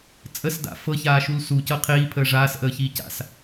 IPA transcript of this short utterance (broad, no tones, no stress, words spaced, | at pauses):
t͡sʼəsda̰ fɤçaːʃul sucɤ qʰiːpʰəː ʐaːsʔəːçiː ca̰s